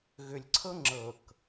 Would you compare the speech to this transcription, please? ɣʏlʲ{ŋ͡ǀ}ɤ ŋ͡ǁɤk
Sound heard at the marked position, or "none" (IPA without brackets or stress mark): ǀʰ